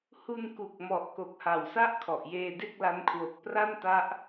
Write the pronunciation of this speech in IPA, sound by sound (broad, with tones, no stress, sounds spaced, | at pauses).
h u˧ n k u˨˩ k̚ m ɔ˨˩ ʔ k o˨˩ k̚ h a˨˩ w s a˥˩ ʔ kʰ ɔ˨˩ ʔ j eː˧ d e˥˩ k̚ l a˦˥ n kʰ w o˨˩ k̚ p r a˥˩ n t a˦˥ ʔ